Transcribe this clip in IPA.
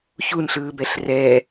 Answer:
çunɬɯːbɛɬ rɛ

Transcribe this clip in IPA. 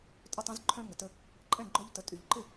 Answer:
tʼʏ˥˩tˤɛ̃˦zǃʰœ̃˦ ŋə˩tə˦ | ǃʼɛ̃˥˩ɡ͡ǃœ˦ʎtə˩˧ tʼy˩ʎǃɪ˥˩

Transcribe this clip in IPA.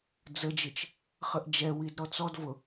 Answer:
d͡zəd͡ʒɨt͡ʃ | χəʔd͡ʒɛwid ɾɔt͡sɔd vʊ

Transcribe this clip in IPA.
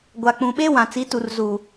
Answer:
ɡʷa˨k͡pũ˨ ɓe˦ wã˨t͡si˨˦ tu˨rzuː˨

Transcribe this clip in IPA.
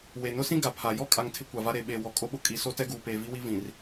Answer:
we˨ nʊ˦sĩ˦ ɡa˨pʰa˨ jɔ˦kʼa˨ŋ tʰɪ˦kʷa˨va˦ ɾe˨ɓe˨ wɔ˨kʼo˦ɓʊ˦ kʼi˨ so˦tɛ˦ɡuː˨peː˨ vi˦wi˦ vĩ˨r

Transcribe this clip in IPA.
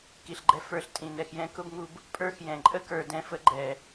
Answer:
ki˨ɬɡ͡ǃɛ˧ fə˞˧ɬ tʼĩ˨nɛ˨xjɛ̃˧ kʊ˦bŋu˧b | pʼə˞˦xjɛ̃˨ ǃʼə˦kə˞˨dɛ̃˧fə˧ ɡ͡ǃɛ˨

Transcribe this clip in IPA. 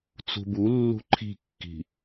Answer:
t͡sṳbulːṳ ǃʰi̤kːi̤

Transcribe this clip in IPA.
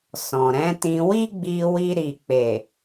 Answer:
sɔ̃˨ɾɛ̃˨˦tĩ˧ wi˦ɡ͡bi˧wi˧ ɾi˨k͡pe˨

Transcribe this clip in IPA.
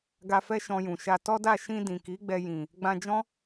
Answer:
ɡa˧fɛ˦ ʃɔ̃˧jũ˨ʃa˧ tɔ˦da˦˨ ʃĩ˧ dĩ˨ki˨˦ɡ͡bɛ˧jĩ˨ | ɡ͡bã˧d͡ʒɔ̃˦

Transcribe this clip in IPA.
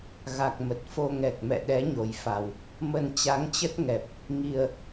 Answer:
ɣa˨˩k̚mə˨˩t̚fo˧ ŋɛ˨˩k̚mɛ̰˧˨ ɗɛ˨˦ɲo˨˩jfa˨˩w | mə˧n t͡ɕa˨˦ŋt͡ɕə˦˥t̚ŋɛ˨˩p̚ | ŋi˧ə̯

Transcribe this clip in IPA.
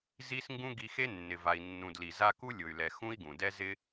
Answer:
zi˦sŋɡũ˦ ɡi˧xe˦ nːɪ˨ va˨i̯ nːũ˨dli˨ za˧ ku˦lʲʊ˨y̯lɛ˨ xũ˦i̯ɡũ˨dɛ˦ zɪ˦

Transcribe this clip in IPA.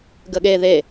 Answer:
ɡəɠe ðe

